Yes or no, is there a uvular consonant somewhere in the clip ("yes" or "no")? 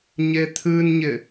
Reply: no